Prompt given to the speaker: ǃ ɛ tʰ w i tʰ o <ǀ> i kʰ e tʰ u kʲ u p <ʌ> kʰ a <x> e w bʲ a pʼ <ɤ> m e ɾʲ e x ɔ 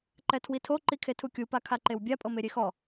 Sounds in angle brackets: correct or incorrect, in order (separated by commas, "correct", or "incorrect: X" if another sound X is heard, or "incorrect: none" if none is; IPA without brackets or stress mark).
incorrect: ǃ, incorrect: a, incorrect: ǃ, correct